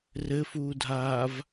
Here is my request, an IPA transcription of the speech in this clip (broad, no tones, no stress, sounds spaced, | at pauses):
r ɘ f uː dʱ aː v